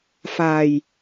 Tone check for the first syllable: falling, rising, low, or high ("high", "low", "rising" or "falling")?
low